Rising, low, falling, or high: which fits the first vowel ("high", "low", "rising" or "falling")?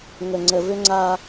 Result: low